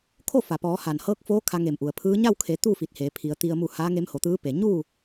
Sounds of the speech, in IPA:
kʰo˥˨fa˩pɔː˩˧ ha˩nhɤː˧˥k̚foː˧˥ kʰa˧ŋe˧˩mʔu˩ə̯ pʰɯː˧˥ ɲa˥˨wkʰe˩˧ t̪u˥˨ fi˧˩t̚heː˩˧pʰi˩˧ə̯t̪i˧ə̯ mu˧˩ haː˧˥ŋe˧˥mho˩˧t̪ɯː˧˥ pe˩ɲuː˥˨

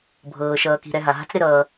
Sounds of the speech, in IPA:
bʱɤː˨ʃʌː˨ki̤˨ ɾɛ˨ɦa˩ɦa̤˦t͡s ɾɪ˦ɾʌː˨

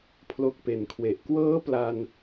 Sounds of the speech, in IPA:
pʰlo˦˥k̚pe˨˩nkʰwe˨˩ʔ kwɤː˦˥ pla˧n

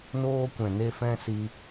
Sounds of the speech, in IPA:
noː˦kʷɛ̃˨ ne˦fɛ̃˦ si˧

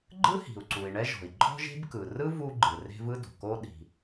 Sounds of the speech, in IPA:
ɡ͡ǃɯ˥hi̤˩u̯ǀu˩i̯ ɳɛ˥ʒɔ̤˩i̯ ǃʼɔ̤˥ʒe̤˥b kɯ˩rɯ˥ vu˥ɡ͡ǃɯ˩ re̤˥vɯ˥do̤˩ko˥ ɗi̤˩

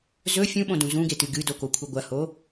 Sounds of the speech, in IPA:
zɵ fʲũɓõdũ zũɡetɨ ɡɨdokokʷʰɨ ɡʷɐho

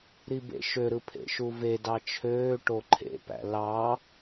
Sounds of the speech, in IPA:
ɾibḛʃø ɾɯpʰḛʃuve dɑt͡ʃʰøː ʈoǃʰḛpæ̰ lɑ

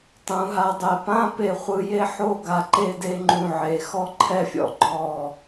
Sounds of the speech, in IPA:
tˤũ˩˧ɦa˧dˤɛ˧˩ pã˥ pe˧χʷɯ˧je˥ ħo˥˧ɡa˧ǃe˥˧ de˥˧ŋ͡ǃũ˧˩ʕe˩˧ xɔ˥ǃʰɛ˥˧fʲɔ̰˧ ɡ͡ǃɔ˧˩

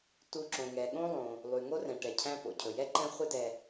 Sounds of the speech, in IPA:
tu˨ ǁõ˩ŋɛ˩ɠõ˥ lˠõ˩ | lˠy˩ ŋo˥rɛ̃˩ʈɛ˩cʰæ̃˦ po̰˩cʰɵ˩ jɛ˥ǃɛ̃˦ χʷɨ˦dɛ˨

